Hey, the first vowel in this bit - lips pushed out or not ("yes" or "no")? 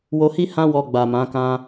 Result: yes